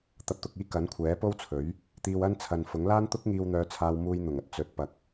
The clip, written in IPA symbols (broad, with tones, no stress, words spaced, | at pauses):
t̪ɐ˧p̚t̪ʊ˧k̚iː˥ kɐ˨˥nkʷʰɛː˨˥po˥wt͡sʰɵ˨˥ɥ | t̪iː˧wɐ˥nt͡sʰɐ˨nfʊ˨˥ŋ laː˥nt̪ʊ˥k̚ŋiː˧w n̪œː˧t͡sʰaː˧wmuː˧j n̪ʊ˨˩ŋɐ˧t̚ t͡sɵ˨˥t̚pɐ˨k̚